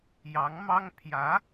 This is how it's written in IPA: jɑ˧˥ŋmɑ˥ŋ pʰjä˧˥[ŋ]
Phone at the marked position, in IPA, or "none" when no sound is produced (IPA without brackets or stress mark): none